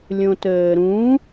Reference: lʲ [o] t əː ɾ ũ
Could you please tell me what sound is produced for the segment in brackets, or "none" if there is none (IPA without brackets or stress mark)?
õ